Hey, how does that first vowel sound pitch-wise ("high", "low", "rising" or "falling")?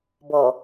low